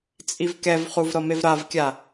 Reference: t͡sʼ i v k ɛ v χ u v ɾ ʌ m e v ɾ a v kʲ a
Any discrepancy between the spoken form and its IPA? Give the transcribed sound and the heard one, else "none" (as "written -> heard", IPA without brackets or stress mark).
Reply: none